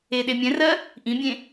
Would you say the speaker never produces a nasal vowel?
no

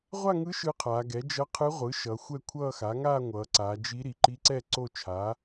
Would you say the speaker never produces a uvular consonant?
no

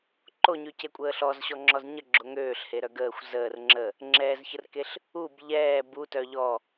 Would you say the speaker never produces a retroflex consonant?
yes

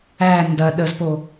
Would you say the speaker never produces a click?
yes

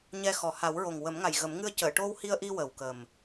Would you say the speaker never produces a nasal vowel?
yes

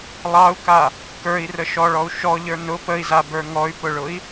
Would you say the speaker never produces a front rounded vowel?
no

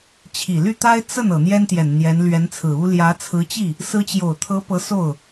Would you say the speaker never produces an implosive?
yes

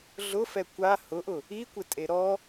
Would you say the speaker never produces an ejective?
no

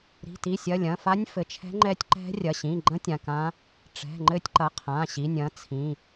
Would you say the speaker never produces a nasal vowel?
no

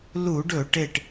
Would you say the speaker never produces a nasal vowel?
yes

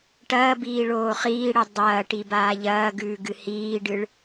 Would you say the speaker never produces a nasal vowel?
yes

